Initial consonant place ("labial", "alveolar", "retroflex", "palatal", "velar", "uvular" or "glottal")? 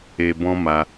labial